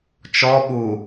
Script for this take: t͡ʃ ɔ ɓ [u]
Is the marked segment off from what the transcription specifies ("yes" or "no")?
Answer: no